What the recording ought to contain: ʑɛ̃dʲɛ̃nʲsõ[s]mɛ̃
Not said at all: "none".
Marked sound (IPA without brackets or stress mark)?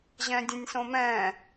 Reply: none